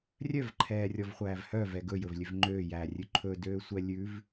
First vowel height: mid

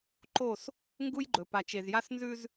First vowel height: mid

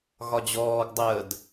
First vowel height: low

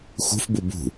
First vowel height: high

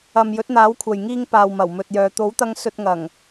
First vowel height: low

